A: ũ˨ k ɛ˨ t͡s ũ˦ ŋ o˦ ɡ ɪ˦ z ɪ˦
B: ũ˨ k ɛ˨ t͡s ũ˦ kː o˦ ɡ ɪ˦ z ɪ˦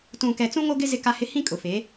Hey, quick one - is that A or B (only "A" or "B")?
A